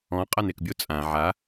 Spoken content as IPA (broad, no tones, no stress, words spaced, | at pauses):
ɔ̃ qʼanekbʲo t͡sʼã ʕa